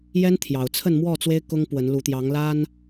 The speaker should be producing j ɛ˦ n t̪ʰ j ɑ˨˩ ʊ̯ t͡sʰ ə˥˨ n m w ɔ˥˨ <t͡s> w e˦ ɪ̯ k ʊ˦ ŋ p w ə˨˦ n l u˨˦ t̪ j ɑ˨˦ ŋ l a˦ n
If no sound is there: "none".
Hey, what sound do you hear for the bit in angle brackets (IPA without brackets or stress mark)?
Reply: t͡s